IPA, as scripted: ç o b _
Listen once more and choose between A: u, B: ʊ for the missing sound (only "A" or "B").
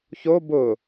B